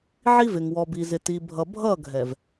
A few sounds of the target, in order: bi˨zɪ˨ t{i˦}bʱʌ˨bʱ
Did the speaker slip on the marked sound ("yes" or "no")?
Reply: yes